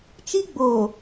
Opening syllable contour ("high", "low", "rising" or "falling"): high